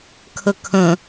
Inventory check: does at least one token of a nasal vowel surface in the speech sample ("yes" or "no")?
yes